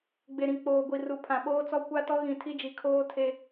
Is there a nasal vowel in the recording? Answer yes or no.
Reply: yes